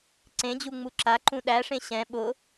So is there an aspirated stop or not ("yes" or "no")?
no